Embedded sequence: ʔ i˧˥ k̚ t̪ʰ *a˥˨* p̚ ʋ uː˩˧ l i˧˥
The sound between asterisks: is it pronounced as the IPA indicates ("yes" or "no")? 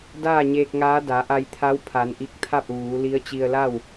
yes